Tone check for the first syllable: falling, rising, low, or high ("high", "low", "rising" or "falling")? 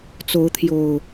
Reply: rising